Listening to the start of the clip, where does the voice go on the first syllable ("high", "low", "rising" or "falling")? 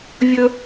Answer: high